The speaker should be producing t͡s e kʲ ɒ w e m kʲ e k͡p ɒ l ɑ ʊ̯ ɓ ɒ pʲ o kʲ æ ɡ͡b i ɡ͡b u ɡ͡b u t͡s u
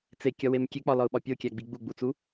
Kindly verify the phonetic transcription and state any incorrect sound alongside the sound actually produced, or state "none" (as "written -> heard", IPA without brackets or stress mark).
ɑ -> ɒ